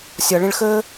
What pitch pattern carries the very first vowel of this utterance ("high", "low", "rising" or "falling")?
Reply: low